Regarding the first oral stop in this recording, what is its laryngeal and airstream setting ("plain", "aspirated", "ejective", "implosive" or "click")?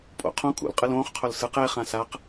ejective